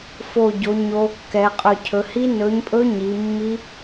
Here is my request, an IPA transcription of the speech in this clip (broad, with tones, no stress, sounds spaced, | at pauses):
f o˧˩ ɟ o˩˧ ɲ o˨˥ kː ɛ˩˧ qʼ ɵ˧˩ cʰ ɵ˩˧ h i˦˥ n ɵ˨˥ ɲ pʼ ɵ˦˥ ɲ i˩˧ mː i˦˥